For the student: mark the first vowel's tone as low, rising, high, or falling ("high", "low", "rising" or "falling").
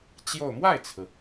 falling